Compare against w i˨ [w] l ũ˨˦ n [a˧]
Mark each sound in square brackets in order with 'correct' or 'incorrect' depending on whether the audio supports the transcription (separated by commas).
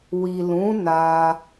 incorrect, correct